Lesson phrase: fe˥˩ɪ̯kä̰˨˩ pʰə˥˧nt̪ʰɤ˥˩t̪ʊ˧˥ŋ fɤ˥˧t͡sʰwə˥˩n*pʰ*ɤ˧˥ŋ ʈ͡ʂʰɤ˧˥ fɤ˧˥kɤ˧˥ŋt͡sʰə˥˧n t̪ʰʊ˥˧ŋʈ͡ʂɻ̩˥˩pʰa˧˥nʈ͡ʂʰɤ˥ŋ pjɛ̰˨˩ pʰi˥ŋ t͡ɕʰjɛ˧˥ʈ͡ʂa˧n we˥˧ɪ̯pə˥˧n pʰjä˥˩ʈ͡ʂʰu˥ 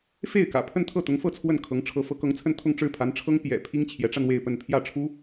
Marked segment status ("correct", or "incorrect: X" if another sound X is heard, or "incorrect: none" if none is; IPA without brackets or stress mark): incorrect: kʰ